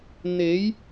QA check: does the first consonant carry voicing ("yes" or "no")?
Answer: yes